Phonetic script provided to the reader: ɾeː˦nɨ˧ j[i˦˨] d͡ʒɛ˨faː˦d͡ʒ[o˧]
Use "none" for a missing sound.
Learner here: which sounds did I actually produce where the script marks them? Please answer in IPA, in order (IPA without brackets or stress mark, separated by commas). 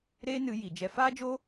i˨, o˦